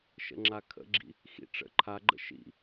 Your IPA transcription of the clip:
ʃ ə̰ ŋ͡ǁ a kʰ ə̰ ɡ͡ǁ ḭ | x ḭ ʈ͡ʂ ə̰ ǃʰ a ɡ͡ǃ ə̰ ʃ ḭ

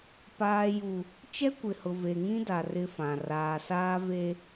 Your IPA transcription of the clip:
p aː˨ j u˨ | t͡ʃ ɛ˦ kʷ ɪ˨ h ʊ˨ v e˨ ŋ ĩ˦ d a˨ r ɪ˦ f ã˨ r aː˨ s aː˦ v e˦

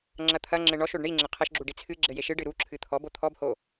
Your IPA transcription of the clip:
ŋ͡ǁ ɐ t̪ʰ ɐ ŋ͡ǁ ɘ ɳ ɔ ʃ o ɖ ɳ i ŋ͡ǁ ɘ qʰ ɐ ʃ ɡ͡ǁ u ɖ i t͡sʰ ɨ ɡ͡ǁ ɘ j e ʃ ɨ ɖ ɨ ɾ u ǁʰ ɨ t̪ʰ ɔ b o t̪ʰ ɔ b h o

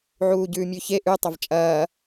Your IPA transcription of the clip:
ʕ uː ɟ ʉː mʲ ʉ ç e ʔ ʉ tˤ ɐ v t͡ʃʼ ɐː

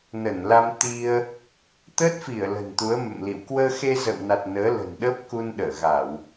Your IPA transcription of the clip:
n ə˧˩ n l a˧ m t̪ i˧ ə̯ | t̪ əː˦˥ t̚ f i˧˩ ə̯ l ə̤˨˩ n t̪ u˨˦ ə̯ m ə̰˧˨ m l ḭ˧˨ w k w əː˧ x e˧ z ə̰˧˨ w n a˨˩ t̚ n əː˨˦ l ə̤˨˩ n ɗ ə˦˥ p̚ k u˧ n ɗ əː˧˩ ɣ a˧˩˨ w

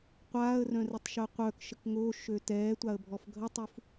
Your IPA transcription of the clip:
qʷ aː ə̯ r œ̃ r ɛ tˤ ʃ œ qʷ œ k ʃ ə k ŋ o ʃ ø t ɛː tʷ a ə̯ bʱ ɔ f ɡʱ ə tˤ u f

